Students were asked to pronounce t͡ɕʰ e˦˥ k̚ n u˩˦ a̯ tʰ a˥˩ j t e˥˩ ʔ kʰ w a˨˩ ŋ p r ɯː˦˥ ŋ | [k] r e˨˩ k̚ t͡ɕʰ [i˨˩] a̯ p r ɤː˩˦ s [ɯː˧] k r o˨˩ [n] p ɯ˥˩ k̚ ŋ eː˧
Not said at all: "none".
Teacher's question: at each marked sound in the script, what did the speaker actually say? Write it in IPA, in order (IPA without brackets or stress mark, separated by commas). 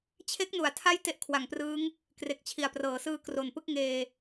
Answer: k, i˨˩, ɯː˧, n